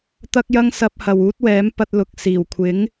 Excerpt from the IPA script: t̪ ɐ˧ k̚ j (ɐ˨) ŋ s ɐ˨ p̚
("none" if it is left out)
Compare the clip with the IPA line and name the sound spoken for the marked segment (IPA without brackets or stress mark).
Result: ɐ˧